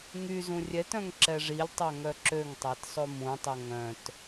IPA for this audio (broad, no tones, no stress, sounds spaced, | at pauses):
ŋ y z ũ rʲ ɛ t œ̃ ŋ ǁ ɛ ʐ i lʲ tˤ æ ŋ œ ǁ ø ŋ tˤ æ t sˤ o m ũ tˤ ɵ ŋ œ̃ t